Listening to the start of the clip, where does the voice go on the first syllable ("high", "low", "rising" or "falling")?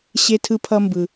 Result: high